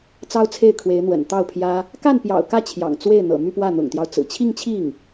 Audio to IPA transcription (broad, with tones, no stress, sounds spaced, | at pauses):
t͡s ɑ˥ ʊ̯ t͡sʰ e˥˩ ɪ̯ kʰ w e˧˥ ɪ̯ n̪ w ə̰˨˩ n t̪ ɑ˥˩ ʊ̯ pʰ j ä˥ | k a˥˩ n p j ɑ̰˨˩ ʊ̯ k ä˥˩ t͡ɕʰ j ɑ̰˨˩ ŋ t͡s w e˥˩ ɪ̯ n̪ ɤ̰˨˩ m y˥˧ p w ä˥˩ n̪ ʊ̰˨˩ ŋ t̪ j ɑ˦ ʊ̯ t͡s ɹ̩˨˩ t͡ɕʰ i˥˧ ŋ t͡ɕʰ i˥˩ ŋ